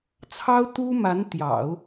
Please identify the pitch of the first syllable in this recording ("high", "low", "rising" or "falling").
high